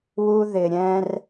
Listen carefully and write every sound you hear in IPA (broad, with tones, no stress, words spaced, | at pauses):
wu˦ ðɪ˨ɾʲɛ̃˦r